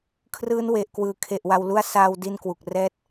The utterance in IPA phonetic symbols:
kʰrɯː˦˥nwe˨˩ʔkwɯː˨˩ kʰe˨˩ʔwa˧wlu˥˩a̯ saː˧wdi˧n kwu˨˩k̚rɛː˥˩t̚

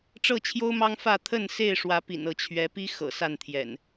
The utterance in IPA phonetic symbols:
ʈ͡ʂɤ˥˨t͡ɕʰjo˦ʊ̯mɑ˦ŋfä˥˨ t̪ʰə˥˨nse˥˨ɪ̯ʂwä˨˦ pḭ˨˩nɤ˨˦t͡ɕʰɥɛ˨˦pi˦ xɤ̰˨˩sa˥˨nt̪ʰjɛ̰˨˩n

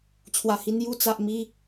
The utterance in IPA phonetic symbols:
t͡ɕʰwa˨˩hi˧n ju˧t͡sa˨ʔmi˧

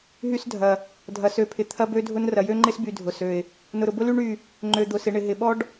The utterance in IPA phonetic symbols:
ɦy˦sdʱɐ˨ | dʱɐ˨sø˨pʰɪ˨ t̪ʰɐ˦bø˦dʱʊ˦n rɐ˨jø˦ŋ͡ǃɪ˦sby˨ dʱʊ˨sø˨ɪ̯ | nʊ˨ɾʊ˨bʊ˦ ly˦ ɳy˦˨ | ŋ͡ǃø˨d̪ʊ˨sɪ˨ ɳɪ˨ɦɪ˨ɓɔ˦ɖ

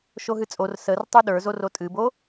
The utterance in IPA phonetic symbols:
ʃoɦɨt͡sʼor sər tˤuɗə˞zor otʼɨbo

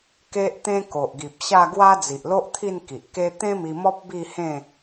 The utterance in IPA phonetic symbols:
ke˦ʔt̪ẽ˦ko˨ʔɡi˨p̚ ɕa˥˧ɡwa˦ d͡zi˨ʔlo˦ʔ t̪ʰi˥˧n ki˨ʔke˦ t̪ẽ˦mi˧mɔ˦p̚ bi˥˧hẽ˥˧

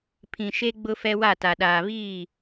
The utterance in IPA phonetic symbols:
pʰĩ˨ʃe˦ ɡ͡bʊ˦fɛ˦wa˦˨ ta˨ ɗaː˨βiː˦˨

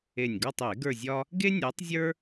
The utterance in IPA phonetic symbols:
e˨˩nʲɡɒ˦˨tˤe˧˩˧ ɡə˞˦˨zʲɒ˥ | ɡe˥ nʲɜ˨˥tˤzʲə˞˥

